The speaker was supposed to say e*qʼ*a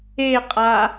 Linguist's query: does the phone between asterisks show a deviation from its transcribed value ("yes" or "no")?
no